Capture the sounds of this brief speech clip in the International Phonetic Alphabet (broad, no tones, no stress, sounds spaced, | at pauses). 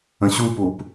ə̃ ɕ u p u p